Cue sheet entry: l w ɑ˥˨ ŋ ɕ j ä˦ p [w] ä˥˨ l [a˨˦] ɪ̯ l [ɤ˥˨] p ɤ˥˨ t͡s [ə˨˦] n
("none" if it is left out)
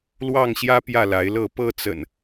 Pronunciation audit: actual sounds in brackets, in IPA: j, a˨˦, ɤ˥˨, ə̰˨˩

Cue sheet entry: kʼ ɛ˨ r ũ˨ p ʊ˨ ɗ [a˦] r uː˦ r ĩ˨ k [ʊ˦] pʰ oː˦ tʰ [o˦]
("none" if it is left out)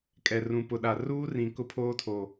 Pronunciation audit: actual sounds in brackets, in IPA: a˨, ʊ˦, o˨

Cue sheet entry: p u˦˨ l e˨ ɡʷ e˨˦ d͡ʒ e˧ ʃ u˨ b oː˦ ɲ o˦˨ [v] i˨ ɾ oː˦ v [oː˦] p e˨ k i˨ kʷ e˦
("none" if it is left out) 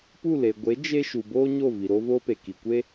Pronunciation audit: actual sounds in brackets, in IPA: v, oː˦

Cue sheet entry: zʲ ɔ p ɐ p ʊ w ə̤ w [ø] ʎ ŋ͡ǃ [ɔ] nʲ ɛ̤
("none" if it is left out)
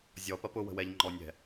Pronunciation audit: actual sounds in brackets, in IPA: ɛ, ɔ

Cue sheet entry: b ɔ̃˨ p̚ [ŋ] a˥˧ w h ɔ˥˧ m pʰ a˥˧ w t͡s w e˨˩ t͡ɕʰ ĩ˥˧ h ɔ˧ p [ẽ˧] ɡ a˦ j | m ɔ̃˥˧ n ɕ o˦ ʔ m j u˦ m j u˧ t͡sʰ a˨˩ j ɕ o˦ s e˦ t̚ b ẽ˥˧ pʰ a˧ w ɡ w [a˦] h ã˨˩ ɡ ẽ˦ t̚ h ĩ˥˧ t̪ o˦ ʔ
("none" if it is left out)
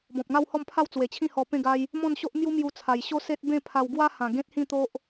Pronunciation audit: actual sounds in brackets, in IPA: ŋ, ẽ˥˧, a˦

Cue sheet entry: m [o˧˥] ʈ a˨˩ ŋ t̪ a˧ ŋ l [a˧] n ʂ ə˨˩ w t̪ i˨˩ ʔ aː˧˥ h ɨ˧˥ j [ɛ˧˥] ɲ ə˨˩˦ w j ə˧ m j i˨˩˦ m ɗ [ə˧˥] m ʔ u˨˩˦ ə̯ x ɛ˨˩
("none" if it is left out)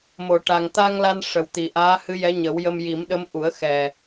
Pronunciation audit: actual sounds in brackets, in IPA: o˨˩˨, a˧, ɛ˧˥, ə˧˥

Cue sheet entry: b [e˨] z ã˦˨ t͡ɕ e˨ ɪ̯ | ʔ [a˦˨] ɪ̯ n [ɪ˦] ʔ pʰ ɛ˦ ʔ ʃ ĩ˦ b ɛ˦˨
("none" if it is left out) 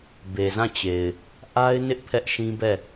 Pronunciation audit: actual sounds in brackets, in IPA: e˨, a˦, ɪ˦

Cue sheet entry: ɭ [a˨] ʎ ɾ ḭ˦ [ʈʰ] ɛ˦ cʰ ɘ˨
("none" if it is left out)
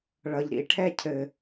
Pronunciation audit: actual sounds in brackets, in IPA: ʌ˨, ʈʰ

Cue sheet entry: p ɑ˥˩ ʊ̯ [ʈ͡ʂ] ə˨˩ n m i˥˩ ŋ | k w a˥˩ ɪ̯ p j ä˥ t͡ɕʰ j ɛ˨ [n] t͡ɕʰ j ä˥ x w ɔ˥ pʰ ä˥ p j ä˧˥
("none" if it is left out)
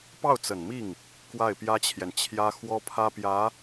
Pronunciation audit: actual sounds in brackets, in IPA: t͡s, n

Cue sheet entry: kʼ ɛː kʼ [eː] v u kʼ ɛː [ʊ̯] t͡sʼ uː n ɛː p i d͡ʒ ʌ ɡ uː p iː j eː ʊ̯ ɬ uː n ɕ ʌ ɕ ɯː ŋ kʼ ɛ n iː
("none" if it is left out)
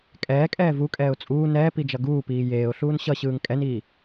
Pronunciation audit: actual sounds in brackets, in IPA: ɛː, ʊ̯

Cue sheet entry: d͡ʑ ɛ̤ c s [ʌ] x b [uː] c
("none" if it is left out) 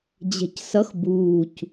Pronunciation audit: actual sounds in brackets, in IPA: ʌ, uː

